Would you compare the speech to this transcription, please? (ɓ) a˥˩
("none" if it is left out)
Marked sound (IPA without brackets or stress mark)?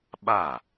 ɓ